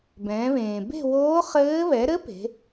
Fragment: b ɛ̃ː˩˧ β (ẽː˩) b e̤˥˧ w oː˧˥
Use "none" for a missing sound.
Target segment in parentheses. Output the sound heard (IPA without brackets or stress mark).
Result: ẽː˩